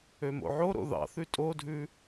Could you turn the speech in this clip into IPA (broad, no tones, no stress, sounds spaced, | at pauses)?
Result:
ø m o̰ ʕ o ɾ o̰ ð ɑ̰ θ ʉ tʼ o dʱ ʉ